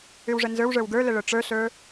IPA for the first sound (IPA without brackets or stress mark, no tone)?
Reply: ʉ